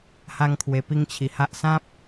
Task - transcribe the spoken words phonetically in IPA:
ha˥˧ŋkʰwe˧pi˥˧ŋ t͡ɕʰi˨˩ha˦ʔ sã˦p̚

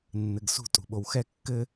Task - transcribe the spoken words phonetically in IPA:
nːɘɡsṳ tʼṳɓowxɛ kːɘ

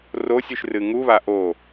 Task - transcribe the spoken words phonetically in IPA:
rosʲʉʃ rɨŋuβa ʔo

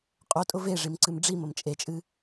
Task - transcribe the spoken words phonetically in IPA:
qʼotʼʊ veʐimǀɨm ɖ͡ʐiməm t͡ʃʼet͡ʃʼɨ

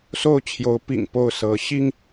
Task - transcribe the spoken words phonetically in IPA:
so˥˨ʊ̯t͡ɕʰjo˨˦ʊ̯pḭ˨˩ŋ po˥˨ʊ̯ sɤ˨˦ɕi˦ŋ

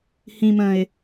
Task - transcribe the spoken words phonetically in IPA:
hĩ mə̃ɪ̯

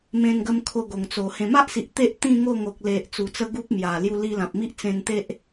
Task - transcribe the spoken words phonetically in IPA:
mẽ˧nɡə˧m kʰo˧ɡo˨˩ŋt͡so˨˩ hẽ˨˩ma˦ʔsi˨ʔ t̪e˦ʔ t̪ĩ˥˧ŋo˥˧ ŋo˨k̚le˨ʔ t͡su˨˩t͡sə˧ ɡu˦p̚mja˨˩ lju˧li˧lã˨p̚mi˦ʔ t͡sẽ˧nt̪e˦ʔ

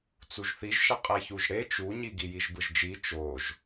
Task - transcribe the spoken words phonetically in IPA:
t͡suʒθiʒʃʌ qʼeçuʒɽe t͡ʃuɲi ɡijiʒbɯʒd͡ʒi t͡ʃoʒ

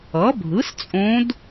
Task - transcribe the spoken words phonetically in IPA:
ʌ˩˥bʱɯ˩˥s t͡sʼõ˧˥d

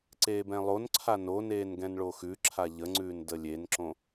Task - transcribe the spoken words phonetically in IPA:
ǀeːbɛ̃lˠonǀʰa noneːn ɡɛ̃nɭoxʉǁʰa ʎəŋ͡ǀʉːn dəlʲenǁõ

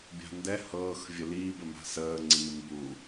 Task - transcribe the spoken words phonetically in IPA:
bʲa̤ndɛ hɤːx vʲəliːb ɘma̤səː ŋ͡ǀiːmbu

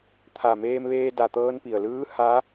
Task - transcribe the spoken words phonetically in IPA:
t̪ʰa˧˩meː˧mʋeː˧ da˧˩t̪ɤː˧npi˩ə̯lɯː˧˥ ha˧˥

